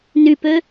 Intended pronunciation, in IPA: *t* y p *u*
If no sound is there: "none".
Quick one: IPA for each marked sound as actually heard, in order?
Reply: n, ø

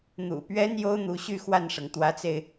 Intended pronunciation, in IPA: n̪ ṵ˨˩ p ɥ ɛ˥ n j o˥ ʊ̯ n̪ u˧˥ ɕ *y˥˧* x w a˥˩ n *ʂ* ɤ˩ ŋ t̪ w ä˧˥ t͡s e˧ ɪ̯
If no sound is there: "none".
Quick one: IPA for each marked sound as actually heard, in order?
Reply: y˥˧, ʂ

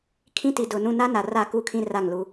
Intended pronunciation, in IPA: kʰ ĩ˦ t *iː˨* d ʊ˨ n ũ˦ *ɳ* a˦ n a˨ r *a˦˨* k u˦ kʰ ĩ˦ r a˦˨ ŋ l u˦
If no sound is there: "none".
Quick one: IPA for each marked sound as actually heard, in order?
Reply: i˨, n, a˦˨

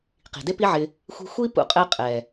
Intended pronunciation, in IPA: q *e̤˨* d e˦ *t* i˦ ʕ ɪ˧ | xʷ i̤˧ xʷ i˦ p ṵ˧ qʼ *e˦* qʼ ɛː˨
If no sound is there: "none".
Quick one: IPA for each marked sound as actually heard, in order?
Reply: i̤˨, p, ɛ˦

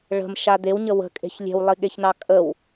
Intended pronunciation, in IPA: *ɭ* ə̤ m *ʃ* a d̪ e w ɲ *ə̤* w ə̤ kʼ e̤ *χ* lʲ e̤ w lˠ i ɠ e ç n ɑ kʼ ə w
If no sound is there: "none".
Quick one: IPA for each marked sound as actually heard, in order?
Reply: ɭ, ʃ, ə, ç

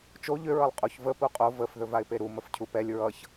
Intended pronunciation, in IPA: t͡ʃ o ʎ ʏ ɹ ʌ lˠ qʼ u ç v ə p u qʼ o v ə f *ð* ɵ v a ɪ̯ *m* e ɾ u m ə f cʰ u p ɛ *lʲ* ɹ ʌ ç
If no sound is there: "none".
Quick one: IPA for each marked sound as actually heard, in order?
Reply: ð, p, lʲ

